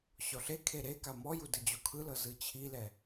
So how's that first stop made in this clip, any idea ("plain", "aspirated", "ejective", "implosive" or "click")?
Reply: aspirated